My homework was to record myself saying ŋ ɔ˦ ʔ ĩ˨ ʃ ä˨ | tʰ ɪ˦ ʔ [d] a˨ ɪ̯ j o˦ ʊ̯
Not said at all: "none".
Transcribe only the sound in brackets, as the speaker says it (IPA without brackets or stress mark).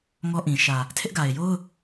ɡ